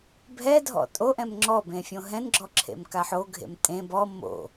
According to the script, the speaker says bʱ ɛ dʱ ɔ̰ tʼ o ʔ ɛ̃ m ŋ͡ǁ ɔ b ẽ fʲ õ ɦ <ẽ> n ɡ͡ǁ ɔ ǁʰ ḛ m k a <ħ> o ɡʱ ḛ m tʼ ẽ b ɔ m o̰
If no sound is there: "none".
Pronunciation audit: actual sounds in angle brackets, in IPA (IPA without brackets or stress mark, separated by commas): ɛ̃, ħ